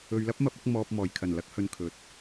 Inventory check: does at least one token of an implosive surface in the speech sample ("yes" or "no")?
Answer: no